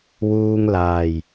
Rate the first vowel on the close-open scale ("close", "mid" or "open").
close